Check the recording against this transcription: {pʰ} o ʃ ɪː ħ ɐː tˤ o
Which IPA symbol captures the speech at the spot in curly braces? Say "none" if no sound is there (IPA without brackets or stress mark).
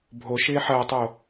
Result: bʱ